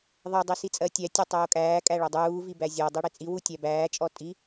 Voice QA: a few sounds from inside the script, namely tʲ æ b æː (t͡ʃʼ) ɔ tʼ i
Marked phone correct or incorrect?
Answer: correct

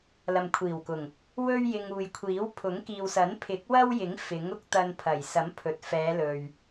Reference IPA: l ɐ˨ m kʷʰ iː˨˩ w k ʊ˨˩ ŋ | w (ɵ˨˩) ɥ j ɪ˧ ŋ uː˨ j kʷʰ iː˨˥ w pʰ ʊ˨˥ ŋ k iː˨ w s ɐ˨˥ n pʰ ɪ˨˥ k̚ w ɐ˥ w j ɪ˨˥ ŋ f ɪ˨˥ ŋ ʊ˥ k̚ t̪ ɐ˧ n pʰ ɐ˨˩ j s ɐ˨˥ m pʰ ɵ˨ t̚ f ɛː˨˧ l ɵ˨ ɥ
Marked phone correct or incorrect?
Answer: incorrect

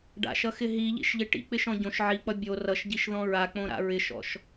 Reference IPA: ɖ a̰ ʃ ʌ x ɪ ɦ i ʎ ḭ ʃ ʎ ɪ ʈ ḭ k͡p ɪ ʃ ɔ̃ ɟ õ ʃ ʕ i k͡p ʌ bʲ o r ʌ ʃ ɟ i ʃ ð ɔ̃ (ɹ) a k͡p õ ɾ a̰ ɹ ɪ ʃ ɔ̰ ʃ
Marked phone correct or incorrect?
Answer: correct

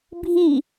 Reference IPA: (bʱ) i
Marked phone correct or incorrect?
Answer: correct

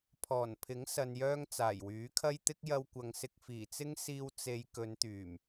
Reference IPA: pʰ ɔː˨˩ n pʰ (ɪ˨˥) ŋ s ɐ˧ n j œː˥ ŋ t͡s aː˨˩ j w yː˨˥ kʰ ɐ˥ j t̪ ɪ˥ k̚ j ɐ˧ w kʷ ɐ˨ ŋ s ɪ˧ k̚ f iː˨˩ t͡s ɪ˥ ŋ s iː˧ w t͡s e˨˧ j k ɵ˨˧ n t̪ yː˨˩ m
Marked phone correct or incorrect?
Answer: correct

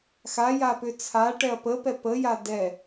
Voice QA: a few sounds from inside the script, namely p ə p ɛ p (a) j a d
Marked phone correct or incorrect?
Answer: incorrect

